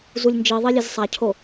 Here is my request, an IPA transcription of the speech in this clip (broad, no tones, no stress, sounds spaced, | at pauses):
z u lʲ n d͡ʒ i ðˤ i lʲ e z sˤ a cʰ o